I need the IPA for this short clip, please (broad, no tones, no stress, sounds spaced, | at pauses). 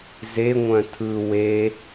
z e ŋʷ œ̃ tʰ ɯ w e